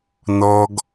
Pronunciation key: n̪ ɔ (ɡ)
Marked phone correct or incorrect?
correct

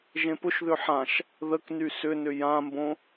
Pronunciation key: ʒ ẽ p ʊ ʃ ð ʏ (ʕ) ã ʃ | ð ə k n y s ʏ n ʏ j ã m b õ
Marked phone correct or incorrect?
incorrect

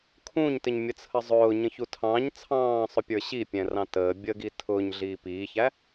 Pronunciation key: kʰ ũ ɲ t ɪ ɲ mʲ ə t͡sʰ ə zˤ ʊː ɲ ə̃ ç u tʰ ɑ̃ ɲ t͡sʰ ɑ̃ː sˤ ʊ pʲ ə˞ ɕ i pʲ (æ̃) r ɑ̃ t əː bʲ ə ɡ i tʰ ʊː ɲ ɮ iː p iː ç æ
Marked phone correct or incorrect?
incorrect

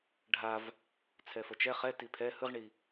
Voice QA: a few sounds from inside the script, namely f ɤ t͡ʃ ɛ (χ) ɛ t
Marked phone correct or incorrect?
correct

